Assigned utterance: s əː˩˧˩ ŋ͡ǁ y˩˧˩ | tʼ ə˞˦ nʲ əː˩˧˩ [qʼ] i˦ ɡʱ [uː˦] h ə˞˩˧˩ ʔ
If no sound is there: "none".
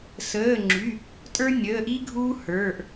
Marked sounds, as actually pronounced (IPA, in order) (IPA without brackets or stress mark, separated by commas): ʔ, uː˦